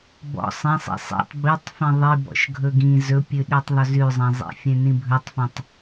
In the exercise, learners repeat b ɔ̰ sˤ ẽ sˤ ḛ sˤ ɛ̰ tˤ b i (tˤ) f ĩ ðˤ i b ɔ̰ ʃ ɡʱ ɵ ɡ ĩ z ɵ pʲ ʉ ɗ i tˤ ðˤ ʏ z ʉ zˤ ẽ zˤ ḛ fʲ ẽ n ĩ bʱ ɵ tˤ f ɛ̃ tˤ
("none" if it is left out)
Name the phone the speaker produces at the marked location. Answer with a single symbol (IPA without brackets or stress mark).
tˤ